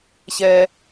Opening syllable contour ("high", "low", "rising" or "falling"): low